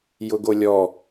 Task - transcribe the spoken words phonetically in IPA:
jʊɡolʲɔ

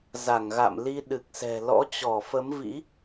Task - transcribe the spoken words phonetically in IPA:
za˧˩ŋɣa̰˧˨mli˧ ɗɨ˨˩k̚sɛ̤˨˩ lɔ̰˧˥t͡ɕɔ˧˩fə˨˦mvḭ˧˥

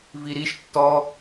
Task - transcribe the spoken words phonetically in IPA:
viɾiʃ tːɔ

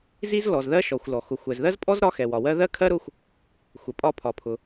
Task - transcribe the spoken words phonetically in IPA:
zi˥z lɔ˩zðɜ˥ʃɔ˩xʷlɔ˩ xʊ˩ xʷɛ˩zðɜ˥zpʼɔ˥z ɾɒ˥xɛ˩wɒ˩wɜ˥ ðɜ˥kʰɜ˥ ɾʊ˥xʷ | xʷɛ˩ pʼɒ˥pʰɒ˩pʰʊ˩

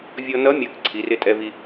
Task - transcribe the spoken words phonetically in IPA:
vʲɔ˧nʌ˧˥ mʲʌ˧˥k ǀʰi˩˧rɪ˧˥ tʼɛ˧vi˧

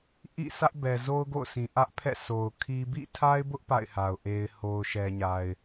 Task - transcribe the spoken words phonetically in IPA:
ʔḭ˦˨sä˦ʔbɛ˨ zo˦ʊ̯ɡo̰˦˨ʊ̯sĩ˨ ʔä˦ʔpʰɛ̰˦˨ so˨ʊ̯ kʰi˦ bḭ˦˨tʰa˦ɪ̯bʊ˦ʔ pa̰˦˨ɪ̯ha˨ʊ̯ ʔe˨ɪ̯ho˨ʊ̯ ʃɛ˨ɲa˨ɪ̯

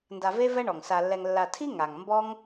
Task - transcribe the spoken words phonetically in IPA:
nda˧ve˦vɛ˦ ɳɔ˨ŋsa˧lːɛ˧ŋlːa˧ tʰi˦ ŋa˨ŋ mbɔ˦ŋ

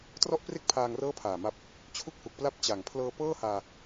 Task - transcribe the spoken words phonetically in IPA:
trɔ˥˩ʔpre˥˩k̚pʰaː˧ŋ rɤː˥˩pʰaː˨˩ma˦˥p̚ | t͡ɕʰu˥˩k̚hu˨˩k̚pla˥˩p̚ t͡ɕa˨˩ŋ pʰlɤː˧pɤː˥˩haː˧

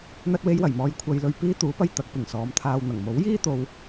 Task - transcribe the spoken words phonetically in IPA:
n̪ɐ˧t̚we˧jwɐ˨˩jmɔː˨j kʷʰɐ˧jlɵ˧ɥ piː˧t̪uː˨˧pɐ˧j t̪ɐ˨˥k̚pɪ˨˩ŋsɔː˨˧mt̪ʰaː˧w n̪ɐ˨˩ŋmo˨˥wjiː˥t̪o˨w

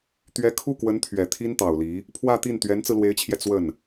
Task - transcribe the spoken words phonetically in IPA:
t̪ɥɛ˧˥kʰu˥˩kwə˧˥nt̪ʰɥɛ˨˩ t̪ʰi˥nt̪ɑ˨˩ʊ̯li˧˥ | pʰwä˥˧t̪i˥˩n t̪ɥɛ˧˥nt͡sɹ̩˧lwe˧˥ɪ̯t͡ɕʰjɛ˧ t͡swə˥˩n

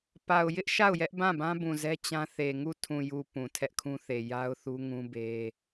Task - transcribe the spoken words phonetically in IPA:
pa˨ʊ̯jɪ˦ʔ ʃa˦˨ʊ̯jɛ˦ʔ bã˦˨bã˦bũ˨zɛ˦ t͡ɕã˦θe˨ŋu˦˨ tʰũ˨ju˨ pũ˨tʰɛ˦ʔkʰũ˦θe˨ ja˦ʊ̯θu˦ŋũ˦be˦

